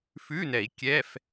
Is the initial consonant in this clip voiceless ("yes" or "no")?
yes